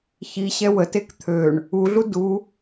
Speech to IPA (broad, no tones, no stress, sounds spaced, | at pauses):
ç i ɕ ɛ w ə t e k t̪ʰ ø ɳ | u ɮ u d u